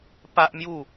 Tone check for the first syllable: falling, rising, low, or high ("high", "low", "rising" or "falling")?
high